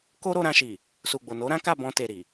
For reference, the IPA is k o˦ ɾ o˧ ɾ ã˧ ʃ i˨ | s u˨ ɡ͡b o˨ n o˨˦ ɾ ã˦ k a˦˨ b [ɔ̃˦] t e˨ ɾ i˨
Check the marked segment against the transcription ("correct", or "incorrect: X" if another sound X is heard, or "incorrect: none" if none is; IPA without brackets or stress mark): incorrect: ɔ̃˧